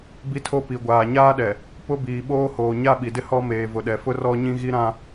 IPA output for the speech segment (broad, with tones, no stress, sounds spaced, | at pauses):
b i˦ tʰ o˦ p i˨ ɡʷ aː˨ ɲ aː˦ ɗ ɛ˨ | p ʊ˦ b iː˨ ɓ oː˦ h oː˨ ɲ a˦ ɓ i˨ d ɪ˦ h ɔ˦ m eː˨ v ʊ˨ ɗ ɛ˨ f ʊ˦ r ɔ˦ ɲ ĩ˦ ɣ i˦ ɾ ã˦